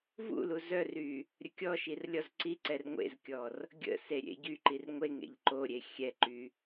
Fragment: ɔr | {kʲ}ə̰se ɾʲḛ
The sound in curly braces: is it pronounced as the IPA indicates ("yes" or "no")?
no